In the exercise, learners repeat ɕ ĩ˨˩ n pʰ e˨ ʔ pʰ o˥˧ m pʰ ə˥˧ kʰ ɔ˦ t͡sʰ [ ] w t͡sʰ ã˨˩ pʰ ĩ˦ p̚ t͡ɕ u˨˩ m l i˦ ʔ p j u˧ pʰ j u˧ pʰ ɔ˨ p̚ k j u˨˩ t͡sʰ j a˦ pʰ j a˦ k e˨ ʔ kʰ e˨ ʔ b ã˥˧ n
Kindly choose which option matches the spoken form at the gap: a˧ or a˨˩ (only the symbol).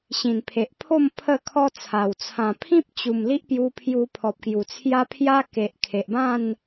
a˨˩